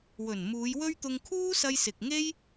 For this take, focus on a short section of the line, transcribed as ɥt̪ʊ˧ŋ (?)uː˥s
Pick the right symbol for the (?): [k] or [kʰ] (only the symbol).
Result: kʰ